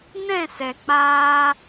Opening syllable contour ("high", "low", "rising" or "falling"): falling